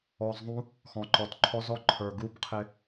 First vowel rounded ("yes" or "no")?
yes